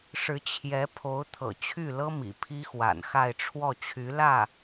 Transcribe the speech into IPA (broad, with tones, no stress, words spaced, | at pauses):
ʂɻ̩˧˥t͡ɕʰjɛ˧˥ pʰo˧˥ʊ̯t̪ʰɤ̰˨˩t͡ɕʰy˥˩lɤ˥ mḭ˨˩pʰi˥xwa̰˨˩nxa˥˧ɪ̯ ʈ͡ʂʰwɔ˥˩t͡ɕʰy˧˥ lä˥˩